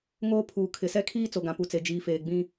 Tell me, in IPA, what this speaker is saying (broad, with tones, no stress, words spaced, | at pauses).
ŋoː˦ pʰuː˨ kʰɪ˨sɛ˦kʰiː˦ t͡so˨ɡã˨pu˨t͡se˨ d͡ʒiː˨feː˨ɡ͡bĩ˦